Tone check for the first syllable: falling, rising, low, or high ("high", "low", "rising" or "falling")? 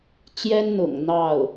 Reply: high